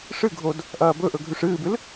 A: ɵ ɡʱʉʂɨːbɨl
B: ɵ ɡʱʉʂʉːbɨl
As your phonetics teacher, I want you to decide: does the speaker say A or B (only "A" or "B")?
A